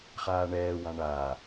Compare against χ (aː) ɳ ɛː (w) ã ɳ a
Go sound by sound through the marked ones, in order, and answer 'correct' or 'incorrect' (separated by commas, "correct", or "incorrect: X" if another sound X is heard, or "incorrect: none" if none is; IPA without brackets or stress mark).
correct, correct